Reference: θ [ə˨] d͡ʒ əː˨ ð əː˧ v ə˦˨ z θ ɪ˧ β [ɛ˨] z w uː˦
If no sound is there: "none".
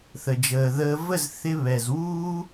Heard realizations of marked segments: ə˨, ɛ˨

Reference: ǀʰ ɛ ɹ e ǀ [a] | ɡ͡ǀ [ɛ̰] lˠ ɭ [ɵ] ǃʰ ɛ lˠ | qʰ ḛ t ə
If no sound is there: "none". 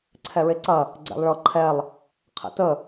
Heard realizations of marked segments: ɐ, ɛ̰, ɤ

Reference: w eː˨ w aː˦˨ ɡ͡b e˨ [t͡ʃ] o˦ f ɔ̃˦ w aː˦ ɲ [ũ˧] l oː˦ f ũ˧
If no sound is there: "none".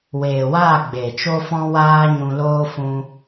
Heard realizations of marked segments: t͡ʃ, ũ˧

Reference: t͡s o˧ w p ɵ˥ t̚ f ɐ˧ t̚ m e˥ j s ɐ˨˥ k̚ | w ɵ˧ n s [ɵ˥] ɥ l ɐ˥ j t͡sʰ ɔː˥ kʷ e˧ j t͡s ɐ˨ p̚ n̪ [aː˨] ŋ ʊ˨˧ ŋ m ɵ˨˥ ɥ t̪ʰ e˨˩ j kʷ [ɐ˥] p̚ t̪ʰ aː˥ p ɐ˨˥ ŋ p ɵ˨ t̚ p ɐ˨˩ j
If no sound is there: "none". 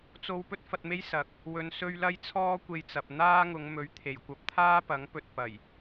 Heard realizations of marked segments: ɵ˥, aː˥, ɐ˧

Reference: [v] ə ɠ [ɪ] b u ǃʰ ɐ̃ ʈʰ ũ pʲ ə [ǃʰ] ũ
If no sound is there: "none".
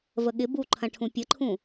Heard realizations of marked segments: v, ɪ, ǃʰ

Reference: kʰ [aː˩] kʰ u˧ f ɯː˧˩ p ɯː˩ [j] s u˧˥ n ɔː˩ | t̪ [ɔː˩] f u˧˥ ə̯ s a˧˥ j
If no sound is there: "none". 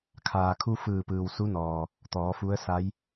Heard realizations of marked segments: aː˩, w, ɔː˩˧

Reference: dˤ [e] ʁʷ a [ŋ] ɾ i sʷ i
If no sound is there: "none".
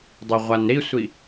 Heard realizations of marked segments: ø, n

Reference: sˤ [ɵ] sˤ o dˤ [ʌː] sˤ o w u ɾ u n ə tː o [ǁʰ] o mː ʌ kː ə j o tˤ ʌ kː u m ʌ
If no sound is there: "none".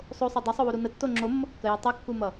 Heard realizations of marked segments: o, ʌ, ŋ͡ǁ

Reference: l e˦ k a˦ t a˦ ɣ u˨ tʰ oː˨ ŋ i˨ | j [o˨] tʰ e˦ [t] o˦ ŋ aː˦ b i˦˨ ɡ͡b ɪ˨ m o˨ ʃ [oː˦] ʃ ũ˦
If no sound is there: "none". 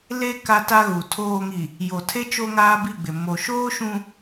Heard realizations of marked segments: o˨, t͡ʃ, oː˦

